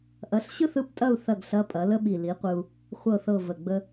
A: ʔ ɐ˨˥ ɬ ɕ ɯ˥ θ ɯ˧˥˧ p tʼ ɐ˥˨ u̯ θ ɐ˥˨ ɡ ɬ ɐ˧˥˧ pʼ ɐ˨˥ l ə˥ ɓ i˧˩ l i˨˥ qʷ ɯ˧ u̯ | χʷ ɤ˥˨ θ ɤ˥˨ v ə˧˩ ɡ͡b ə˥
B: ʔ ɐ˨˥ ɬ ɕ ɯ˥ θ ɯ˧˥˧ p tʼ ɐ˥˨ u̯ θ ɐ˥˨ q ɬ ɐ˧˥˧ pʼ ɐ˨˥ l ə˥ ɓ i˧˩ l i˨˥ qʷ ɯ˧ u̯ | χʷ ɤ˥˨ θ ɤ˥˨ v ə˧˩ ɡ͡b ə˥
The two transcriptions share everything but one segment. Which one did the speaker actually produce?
A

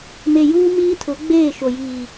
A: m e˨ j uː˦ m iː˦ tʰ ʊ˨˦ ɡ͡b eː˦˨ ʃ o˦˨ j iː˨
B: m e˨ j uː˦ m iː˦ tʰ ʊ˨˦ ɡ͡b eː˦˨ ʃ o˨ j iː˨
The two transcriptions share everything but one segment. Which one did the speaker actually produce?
B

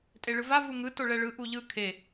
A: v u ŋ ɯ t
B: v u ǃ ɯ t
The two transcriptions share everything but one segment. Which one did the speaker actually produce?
A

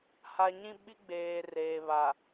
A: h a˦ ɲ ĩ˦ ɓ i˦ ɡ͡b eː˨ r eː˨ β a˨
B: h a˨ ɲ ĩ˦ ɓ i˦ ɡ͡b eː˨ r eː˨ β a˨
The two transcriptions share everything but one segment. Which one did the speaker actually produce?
B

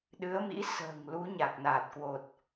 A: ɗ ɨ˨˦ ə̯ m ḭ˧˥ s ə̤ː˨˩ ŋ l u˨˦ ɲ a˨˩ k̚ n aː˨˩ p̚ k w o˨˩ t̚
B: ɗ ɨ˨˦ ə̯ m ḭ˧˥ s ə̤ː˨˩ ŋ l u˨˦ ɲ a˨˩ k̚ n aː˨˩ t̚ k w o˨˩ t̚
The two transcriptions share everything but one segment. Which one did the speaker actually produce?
B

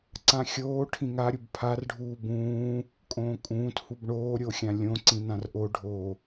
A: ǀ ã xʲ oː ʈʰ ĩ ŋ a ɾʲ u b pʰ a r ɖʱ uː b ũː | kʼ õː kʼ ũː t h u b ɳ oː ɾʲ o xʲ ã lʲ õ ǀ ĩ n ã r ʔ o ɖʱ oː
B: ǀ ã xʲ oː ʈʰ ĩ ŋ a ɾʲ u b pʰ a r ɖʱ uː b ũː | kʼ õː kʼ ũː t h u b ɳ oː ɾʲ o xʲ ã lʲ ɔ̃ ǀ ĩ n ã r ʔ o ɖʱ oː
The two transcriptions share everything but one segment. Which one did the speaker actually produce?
A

